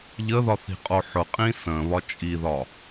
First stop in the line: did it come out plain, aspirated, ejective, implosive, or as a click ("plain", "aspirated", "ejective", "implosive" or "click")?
ejective